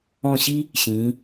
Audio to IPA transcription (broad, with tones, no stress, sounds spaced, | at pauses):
ɔ̃˦˨ ɕ i˥ | ɕ ĩː˨˦